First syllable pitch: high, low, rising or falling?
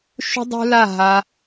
high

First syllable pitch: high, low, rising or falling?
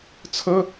high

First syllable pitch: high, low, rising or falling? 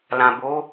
low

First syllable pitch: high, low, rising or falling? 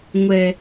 low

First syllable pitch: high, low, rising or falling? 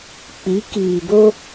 rising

